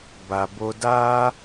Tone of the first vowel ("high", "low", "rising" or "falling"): low